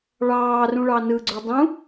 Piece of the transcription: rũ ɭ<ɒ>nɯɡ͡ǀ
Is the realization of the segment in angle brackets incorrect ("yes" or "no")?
yes